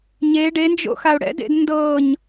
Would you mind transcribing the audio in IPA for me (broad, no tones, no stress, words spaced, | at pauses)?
ɲe ɖend͡ʒo̰ xaʊ̯ɽɛ̰dḛd ndɤɲ